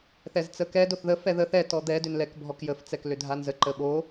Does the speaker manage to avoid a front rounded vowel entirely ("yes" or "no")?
no